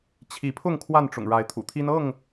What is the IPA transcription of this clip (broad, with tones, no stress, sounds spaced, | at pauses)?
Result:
t͡ɕʰ i˨˦ pʰ ʊ˥˨ ŋ kʰ w a˥˨ n ʈ͡ʂ ʊ̰˨˩ ŋ ɻ a˨˦ ɪ̯ t̪ʰ ṵ˨˩ t̪ʰ i˦ n ɤ˥˨ ŋ